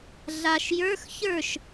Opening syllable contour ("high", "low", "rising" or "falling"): low